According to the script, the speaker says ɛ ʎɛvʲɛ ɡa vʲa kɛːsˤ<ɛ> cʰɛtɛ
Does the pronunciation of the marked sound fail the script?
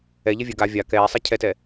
no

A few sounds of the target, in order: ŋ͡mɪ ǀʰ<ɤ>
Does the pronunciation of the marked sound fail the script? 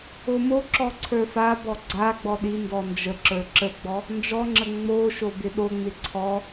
yes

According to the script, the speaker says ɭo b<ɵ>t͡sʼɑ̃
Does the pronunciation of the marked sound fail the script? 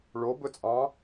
no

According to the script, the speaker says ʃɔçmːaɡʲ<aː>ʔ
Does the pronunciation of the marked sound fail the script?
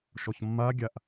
yes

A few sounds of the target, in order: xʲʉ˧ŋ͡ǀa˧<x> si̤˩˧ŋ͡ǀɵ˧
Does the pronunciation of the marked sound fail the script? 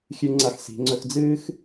no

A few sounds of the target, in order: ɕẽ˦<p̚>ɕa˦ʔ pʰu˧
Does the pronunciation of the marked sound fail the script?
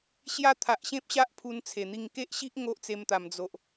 no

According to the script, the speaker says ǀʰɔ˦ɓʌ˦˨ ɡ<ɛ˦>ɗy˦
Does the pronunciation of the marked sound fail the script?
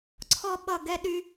no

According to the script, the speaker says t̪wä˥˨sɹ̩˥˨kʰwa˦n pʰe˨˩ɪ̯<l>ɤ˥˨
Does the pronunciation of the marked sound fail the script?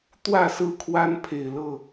no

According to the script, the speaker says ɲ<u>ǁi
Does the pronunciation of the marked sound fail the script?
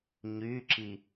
yes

